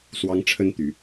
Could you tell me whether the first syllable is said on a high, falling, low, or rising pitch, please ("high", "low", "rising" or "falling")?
high